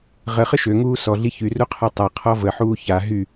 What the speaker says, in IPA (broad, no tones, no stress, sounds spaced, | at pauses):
ʁ ə χ ə ʃ ø ŋ uː s ɔ ɮ i ç y r u qʰ a tˤ a qʰ ɔ v ə ħ uː ç a ɦ y